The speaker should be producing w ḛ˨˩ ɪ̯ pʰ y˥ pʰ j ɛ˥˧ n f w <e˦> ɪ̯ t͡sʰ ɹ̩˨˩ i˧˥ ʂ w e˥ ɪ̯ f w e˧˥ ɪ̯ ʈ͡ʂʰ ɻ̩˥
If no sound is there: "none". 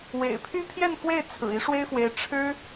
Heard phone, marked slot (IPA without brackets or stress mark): e˥˩